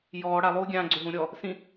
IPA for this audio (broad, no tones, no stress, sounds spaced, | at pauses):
j ɔː ɽ a lˠ uː ɡʲ ã ɡ͡ǀ ʏ ɦ ũ ɾʲ ɔ | s ĩ